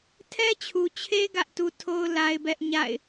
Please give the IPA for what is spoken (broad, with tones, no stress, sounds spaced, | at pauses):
tʰ ɛ˦ t͡ɕʰ u˨ t͡ɕʰ e˦ ɡ ä˦ ʔ t u˦ tʰ o˦ ʊ̯ l a˦ ɪ̯ b ɛ˦ ʔ ɲ a̰˦˨ ɪ̯